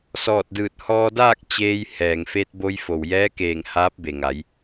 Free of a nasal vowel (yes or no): yes